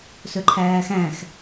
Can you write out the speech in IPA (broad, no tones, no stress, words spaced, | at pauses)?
sɵǃʰæːxæ̃x